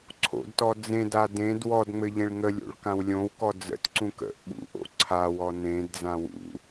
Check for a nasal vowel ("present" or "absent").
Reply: present